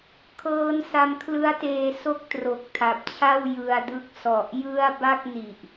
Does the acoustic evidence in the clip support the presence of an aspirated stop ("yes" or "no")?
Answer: yes